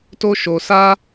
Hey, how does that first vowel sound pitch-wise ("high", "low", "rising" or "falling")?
high